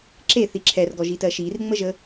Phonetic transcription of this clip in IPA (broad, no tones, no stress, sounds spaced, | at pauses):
ǁ e θ i ǁʰ ɛ r ɡ ɔ ʒ i t ɜ ʃ i r ŋ͡m ə ʒ ə